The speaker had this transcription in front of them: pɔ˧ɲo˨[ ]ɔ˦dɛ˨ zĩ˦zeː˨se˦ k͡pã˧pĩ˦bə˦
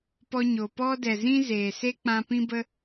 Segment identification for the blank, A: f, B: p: B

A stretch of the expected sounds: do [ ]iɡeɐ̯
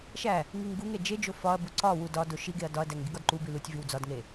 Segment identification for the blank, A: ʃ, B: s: A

